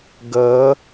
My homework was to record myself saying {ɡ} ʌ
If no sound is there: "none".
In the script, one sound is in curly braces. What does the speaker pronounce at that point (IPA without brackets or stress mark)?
ɡ